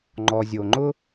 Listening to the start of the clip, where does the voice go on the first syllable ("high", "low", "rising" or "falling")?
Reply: low